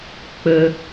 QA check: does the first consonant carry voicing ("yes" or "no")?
no